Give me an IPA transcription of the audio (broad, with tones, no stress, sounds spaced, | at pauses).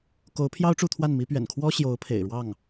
k o˧˥ ʊ̯ pʰ j ɑ˥ ʊ̯ ʈ͡ʂ u˥˧ t̪ʰ w a˥˩ n m i˧˥ p ɥ ɛ̰˨˩ n kʰ w ɔ˥ ɕ j o˧˥ ʊ̯ pʰ ḛ˨˩ ɪ̯ ɻ w ɑ˥˩ ŋ